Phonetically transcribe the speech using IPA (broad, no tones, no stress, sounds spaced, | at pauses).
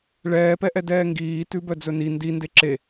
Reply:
ɭ ɛː p ɛ ʔ ɛ d ɛː ŋ ɡ iː t ʉ b œ d͡z ɵ n i n d i n d e ǁ e